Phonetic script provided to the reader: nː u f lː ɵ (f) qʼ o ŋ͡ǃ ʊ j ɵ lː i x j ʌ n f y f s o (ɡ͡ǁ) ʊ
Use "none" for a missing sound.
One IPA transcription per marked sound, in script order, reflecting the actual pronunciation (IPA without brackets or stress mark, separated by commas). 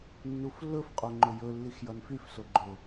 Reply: f, ɡ͡ǃ